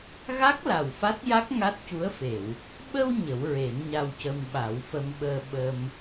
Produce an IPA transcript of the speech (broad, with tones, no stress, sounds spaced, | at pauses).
ɣ a˦˥ k̚ l a˨˩ w f a˦˥ t̚ j a˦˥ k̚ ŋ a˦˥ t̚ c u˧˥ ə̯ f e˨˩˨ w | ɓ ə˧ w ɲ ə˨˩˦ w ɹ e˨˩˦ n ɲ a˧ w c ə˧ m ɓ a˨˩˦ w f ə˧ m ɓ əː˧ ɓ ə˧ m